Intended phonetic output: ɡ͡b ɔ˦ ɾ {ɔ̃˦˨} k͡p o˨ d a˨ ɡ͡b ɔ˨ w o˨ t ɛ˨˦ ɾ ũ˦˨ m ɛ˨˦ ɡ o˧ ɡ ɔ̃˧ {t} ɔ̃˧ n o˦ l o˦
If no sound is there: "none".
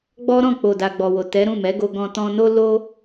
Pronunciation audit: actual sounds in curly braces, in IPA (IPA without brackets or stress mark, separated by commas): ɔ̃˦˨, t